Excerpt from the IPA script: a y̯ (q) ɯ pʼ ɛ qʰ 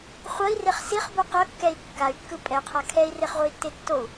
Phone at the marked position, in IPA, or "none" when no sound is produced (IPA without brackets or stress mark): kː